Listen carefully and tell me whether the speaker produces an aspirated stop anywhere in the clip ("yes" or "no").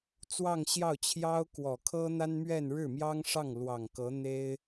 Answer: yes